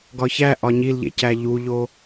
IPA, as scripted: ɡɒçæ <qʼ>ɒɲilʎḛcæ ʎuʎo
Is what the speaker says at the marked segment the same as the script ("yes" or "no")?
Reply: no